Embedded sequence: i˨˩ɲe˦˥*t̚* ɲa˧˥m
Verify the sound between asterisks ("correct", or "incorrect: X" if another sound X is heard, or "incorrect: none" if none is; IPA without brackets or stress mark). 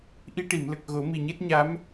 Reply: correct